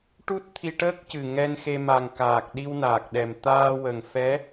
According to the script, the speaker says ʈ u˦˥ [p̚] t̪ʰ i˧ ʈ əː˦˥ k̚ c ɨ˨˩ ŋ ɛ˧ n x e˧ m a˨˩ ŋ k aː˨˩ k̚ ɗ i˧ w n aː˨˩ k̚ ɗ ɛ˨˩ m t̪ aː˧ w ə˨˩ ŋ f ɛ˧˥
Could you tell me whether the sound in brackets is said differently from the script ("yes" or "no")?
yes